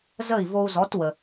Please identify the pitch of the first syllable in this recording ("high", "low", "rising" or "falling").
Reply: falling